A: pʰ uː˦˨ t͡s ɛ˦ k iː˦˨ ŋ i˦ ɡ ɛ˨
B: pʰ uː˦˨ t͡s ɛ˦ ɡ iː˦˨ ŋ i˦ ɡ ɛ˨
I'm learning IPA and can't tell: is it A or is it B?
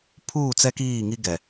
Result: A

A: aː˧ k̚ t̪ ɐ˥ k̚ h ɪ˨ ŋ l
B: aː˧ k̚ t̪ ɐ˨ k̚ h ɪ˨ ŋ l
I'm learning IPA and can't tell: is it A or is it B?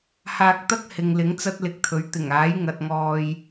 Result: A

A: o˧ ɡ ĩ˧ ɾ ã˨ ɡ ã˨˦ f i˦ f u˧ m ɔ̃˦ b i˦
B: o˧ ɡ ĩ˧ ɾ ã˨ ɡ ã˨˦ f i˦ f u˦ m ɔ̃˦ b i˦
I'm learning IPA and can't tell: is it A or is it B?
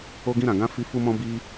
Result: B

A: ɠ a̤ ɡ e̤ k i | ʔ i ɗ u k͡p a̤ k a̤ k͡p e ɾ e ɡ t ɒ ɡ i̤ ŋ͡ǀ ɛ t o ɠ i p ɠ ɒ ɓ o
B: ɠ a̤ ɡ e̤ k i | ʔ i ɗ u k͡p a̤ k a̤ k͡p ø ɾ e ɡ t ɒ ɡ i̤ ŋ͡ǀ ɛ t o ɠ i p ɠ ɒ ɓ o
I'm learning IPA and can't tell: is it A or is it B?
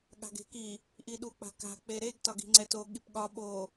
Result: A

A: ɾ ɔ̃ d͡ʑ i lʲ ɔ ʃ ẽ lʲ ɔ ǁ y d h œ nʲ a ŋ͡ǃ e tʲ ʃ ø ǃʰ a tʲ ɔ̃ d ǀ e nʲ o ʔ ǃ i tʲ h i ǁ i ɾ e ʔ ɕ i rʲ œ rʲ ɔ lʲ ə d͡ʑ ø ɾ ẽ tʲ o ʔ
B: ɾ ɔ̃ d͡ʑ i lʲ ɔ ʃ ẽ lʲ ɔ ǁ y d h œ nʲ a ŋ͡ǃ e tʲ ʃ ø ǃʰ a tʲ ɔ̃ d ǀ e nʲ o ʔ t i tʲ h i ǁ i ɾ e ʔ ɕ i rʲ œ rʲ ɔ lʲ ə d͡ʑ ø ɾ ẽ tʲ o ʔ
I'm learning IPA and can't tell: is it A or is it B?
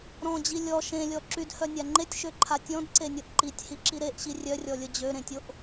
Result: A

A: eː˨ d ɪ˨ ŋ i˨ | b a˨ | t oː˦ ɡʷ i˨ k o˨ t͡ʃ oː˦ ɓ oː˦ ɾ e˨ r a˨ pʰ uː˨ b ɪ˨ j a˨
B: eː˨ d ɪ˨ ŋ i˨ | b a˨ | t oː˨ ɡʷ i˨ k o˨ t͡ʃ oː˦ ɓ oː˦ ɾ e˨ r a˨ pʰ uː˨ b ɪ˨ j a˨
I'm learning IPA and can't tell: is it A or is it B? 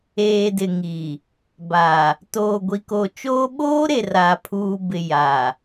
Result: B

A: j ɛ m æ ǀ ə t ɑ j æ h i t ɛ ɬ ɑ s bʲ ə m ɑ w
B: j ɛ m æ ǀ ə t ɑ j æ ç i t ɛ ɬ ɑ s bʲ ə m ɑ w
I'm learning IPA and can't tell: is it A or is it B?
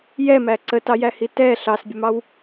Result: A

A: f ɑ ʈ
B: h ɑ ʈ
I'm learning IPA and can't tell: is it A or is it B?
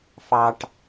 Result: A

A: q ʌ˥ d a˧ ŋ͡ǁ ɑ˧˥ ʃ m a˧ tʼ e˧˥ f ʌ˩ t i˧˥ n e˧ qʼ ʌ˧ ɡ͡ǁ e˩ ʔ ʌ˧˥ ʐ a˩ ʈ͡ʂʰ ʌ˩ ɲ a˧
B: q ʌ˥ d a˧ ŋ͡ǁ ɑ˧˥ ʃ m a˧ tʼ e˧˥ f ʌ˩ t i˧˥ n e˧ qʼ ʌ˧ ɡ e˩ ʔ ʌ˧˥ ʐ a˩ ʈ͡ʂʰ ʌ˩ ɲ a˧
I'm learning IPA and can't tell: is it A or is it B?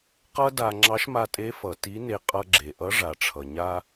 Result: A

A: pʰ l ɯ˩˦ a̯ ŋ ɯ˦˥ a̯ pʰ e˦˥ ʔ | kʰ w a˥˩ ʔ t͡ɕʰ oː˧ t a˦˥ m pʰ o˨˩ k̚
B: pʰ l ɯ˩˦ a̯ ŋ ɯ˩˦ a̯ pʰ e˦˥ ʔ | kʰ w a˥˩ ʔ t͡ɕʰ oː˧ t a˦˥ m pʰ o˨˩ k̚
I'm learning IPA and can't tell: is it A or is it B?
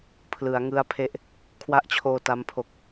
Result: A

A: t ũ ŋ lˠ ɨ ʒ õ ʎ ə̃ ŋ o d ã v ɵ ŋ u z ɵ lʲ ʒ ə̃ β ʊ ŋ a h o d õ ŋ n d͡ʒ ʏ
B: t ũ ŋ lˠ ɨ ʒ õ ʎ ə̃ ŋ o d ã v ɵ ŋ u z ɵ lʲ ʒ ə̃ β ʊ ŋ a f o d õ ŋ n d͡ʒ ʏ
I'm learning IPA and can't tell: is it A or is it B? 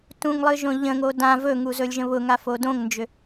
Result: B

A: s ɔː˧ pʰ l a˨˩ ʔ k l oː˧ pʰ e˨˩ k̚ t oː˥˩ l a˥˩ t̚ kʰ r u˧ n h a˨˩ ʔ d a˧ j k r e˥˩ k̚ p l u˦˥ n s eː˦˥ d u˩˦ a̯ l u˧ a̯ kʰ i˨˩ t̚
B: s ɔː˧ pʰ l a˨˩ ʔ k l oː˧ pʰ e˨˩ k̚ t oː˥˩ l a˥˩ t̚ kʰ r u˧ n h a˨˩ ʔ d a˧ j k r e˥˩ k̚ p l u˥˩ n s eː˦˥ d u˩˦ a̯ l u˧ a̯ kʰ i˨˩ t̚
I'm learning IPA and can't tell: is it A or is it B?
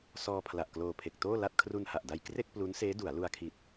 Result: A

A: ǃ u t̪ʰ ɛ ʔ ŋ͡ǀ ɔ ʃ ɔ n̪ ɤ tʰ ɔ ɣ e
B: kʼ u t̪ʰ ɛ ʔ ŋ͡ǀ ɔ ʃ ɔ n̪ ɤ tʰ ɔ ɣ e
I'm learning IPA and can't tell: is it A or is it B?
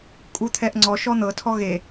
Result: B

